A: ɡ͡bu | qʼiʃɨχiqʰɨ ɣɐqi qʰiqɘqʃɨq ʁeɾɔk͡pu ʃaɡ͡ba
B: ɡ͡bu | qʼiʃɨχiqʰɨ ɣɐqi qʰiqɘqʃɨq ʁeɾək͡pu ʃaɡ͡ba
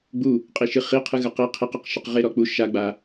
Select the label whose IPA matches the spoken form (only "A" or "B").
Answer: A